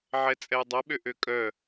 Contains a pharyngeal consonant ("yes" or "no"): yes